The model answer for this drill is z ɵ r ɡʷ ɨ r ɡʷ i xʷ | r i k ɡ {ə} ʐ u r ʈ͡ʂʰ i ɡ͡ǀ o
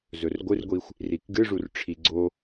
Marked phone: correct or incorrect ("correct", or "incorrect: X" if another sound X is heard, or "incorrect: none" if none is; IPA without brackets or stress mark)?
incorrect: ɨ